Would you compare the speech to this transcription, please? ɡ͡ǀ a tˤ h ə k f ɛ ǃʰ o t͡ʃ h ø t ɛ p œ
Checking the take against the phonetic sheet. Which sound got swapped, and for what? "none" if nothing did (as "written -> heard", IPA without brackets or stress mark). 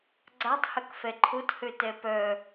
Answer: t͡ʃ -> t